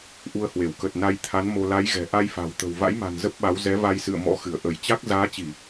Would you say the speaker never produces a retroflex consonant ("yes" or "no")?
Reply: yes